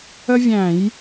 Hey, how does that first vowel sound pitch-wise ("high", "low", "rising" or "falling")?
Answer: high